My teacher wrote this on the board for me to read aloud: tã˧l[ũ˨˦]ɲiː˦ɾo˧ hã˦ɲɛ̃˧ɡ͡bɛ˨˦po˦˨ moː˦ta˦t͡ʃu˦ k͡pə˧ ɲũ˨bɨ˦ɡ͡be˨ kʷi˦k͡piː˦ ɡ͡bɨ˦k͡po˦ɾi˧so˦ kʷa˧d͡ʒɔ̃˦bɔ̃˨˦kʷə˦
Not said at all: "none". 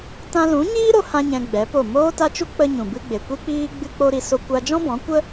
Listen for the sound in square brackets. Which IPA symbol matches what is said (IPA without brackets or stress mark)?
ũ˨˦